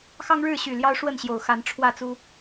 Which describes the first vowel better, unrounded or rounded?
unrounded